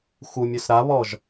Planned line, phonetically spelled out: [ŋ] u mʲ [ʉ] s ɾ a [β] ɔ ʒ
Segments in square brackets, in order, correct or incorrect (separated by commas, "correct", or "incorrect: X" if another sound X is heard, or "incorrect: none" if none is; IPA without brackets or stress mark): incorrect: x, correct, correct